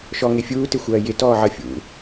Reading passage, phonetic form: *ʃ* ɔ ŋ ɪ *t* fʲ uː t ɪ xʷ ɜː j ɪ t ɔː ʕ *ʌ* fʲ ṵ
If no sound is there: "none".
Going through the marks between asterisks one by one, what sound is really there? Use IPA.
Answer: ʃ, none, ʌ

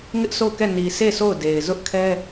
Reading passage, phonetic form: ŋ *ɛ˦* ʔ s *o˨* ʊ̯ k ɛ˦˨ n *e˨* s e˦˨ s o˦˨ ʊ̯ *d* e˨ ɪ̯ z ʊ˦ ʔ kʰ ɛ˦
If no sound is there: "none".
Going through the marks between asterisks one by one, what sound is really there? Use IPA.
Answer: ɪ˦, o˦˨, i˨, d

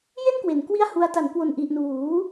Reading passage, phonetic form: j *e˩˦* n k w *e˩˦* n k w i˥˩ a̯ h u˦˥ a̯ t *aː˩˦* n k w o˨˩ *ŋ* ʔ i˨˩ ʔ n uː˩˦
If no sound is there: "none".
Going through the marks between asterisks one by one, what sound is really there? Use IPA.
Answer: e˥˩, e˩˦, a˩˦, n

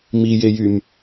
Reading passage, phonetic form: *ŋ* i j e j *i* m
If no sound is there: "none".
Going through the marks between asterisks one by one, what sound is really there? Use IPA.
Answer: m, y

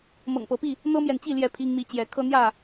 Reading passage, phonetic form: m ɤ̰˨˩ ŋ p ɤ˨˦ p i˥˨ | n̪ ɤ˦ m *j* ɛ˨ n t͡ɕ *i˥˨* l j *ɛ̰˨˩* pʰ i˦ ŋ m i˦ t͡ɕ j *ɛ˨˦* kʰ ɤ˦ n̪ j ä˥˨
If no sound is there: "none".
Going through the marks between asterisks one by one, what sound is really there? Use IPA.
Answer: j, i˥˨, ɛ˥˨, ɛ˨˦

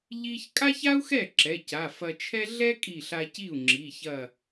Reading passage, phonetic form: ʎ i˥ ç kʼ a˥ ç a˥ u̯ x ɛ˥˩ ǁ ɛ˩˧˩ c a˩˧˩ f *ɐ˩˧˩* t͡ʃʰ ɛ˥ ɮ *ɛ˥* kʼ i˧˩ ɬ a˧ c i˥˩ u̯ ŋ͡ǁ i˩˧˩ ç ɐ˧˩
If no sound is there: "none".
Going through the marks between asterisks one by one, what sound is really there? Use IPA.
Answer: ɐ˧, ɛ˥

